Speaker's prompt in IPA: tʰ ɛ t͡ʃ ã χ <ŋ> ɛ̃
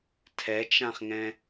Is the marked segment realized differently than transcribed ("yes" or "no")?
no